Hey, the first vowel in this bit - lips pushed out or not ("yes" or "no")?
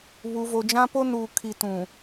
yes